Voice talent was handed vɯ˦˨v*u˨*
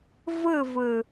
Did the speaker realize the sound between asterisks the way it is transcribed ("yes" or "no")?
no